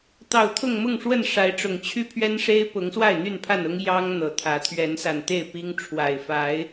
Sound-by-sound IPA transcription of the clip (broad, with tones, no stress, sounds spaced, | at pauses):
t̪ ɑ˨˩ ʊ̯ t̪ʰ ʊ˥˨ ŋ m ʊ˥˨ ŋ ʂ w ə˥˨ n ʂ a˨˦ ɪ̯ ʈ͡ʂ ʊ˨˩ ŋ t͡ɕʰ y˦ pʰ ɥ ɛ˦ n ʂ e˦ ɪ̯ p ʊ˨˦ ŋ s w a˥˨ ɪ̯ n̪ y˥˨ n pʰ a˥˨ n ʊ˦ ŋ j ɑ˦ ŋ n̪ ɤ˨˩ t̪ʰ ä˨˦ t̪ʰ ɥ ɛ˨˦ n s a˨˩ n t̪ e˥˨ ɪ̯ p i˦ ŋ ʈ͡ʂʰ w a˨˩ ɪ̯ f a˨˦ ɪ̯